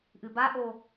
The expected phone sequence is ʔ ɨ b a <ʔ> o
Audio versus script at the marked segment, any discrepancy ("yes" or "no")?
no